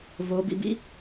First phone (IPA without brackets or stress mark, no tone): v